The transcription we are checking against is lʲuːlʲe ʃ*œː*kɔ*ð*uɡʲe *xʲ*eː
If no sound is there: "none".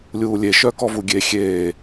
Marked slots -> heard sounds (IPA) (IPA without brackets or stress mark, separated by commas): œː, v, xʲ